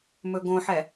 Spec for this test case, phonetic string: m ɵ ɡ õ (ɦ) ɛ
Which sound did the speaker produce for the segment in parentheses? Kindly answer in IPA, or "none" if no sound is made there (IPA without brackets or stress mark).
ħ